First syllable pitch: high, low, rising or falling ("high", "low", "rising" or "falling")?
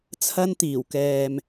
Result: high